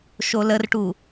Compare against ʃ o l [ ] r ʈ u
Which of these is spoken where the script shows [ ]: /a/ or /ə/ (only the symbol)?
ə